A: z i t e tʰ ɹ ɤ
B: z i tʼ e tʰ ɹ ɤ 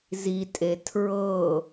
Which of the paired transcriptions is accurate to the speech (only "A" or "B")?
B